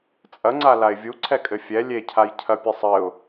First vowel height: low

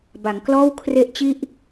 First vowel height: low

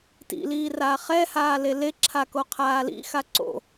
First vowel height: high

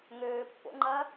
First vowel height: mid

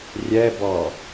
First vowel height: mid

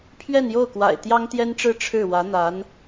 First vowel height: mid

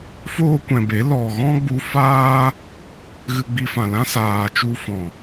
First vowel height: mid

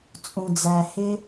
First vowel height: high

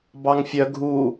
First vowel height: low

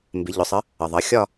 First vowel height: high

